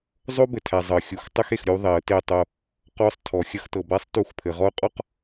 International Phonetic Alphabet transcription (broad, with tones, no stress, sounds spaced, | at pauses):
zˤ o˦ b ɘ˨ tʰ æ˨ zˤ ɤ˨ xʲ u˨ x tˤ ə˦ x e˨ x ɾʲ u˦ ðˤ e˨˦ ə̯ t e˦˨ tˤ o˦ | q ɔ˦˨ sˤ tʰ ɔ˨ xʲ ə˦ x t ɤ˨ b a˦ sˤ t u˦˨ x pʰ ɘ˨ ʁ ɔ˦ ʊ̯ qʼ ɔ˦ q